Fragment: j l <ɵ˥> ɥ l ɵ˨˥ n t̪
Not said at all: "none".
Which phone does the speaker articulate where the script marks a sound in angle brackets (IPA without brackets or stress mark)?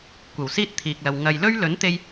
ɵ˥